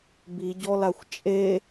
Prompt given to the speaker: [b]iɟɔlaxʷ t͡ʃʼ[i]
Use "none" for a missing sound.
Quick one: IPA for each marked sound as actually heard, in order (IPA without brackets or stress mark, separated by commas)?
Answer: b, e